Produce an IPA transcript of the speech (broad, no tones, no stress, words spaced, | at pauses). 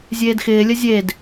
zʲeːdxɪːlʲə zʲed